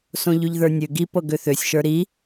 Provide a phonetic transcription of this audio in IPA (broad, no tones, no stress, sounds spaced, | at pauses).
s õ ʎ ʉ ʎ ð ə˞ nʲ ø ɡ i p ɤ ɡ ø θ ø sʲ ʃ ə˞ ɾ i